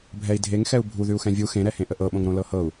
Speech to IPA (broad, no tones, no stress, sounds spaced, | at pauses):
bʱ ɛ i̯ dʱ e ŋ x ɛ u̯ bʱ u ð ʉ u̯ x ɛ̃ vʲ u x ẽ ɾ ɛ h ẽ ʔ ə ʔ ɤ ɓ õ ŋ ɾ õ l ɤ h ɤ u̯